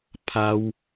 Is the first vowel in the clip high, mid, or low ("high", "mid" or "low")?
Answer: low